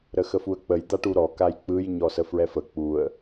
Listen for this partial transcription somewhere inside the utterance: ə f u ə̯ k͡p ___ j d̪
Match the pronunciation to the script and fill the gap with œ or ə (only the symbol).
ə